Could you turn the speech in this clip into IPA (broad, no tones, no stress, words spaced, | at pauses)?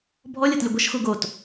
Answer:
bʱɔlʲɤtlʲʊ ɡʷəʃxu ɡot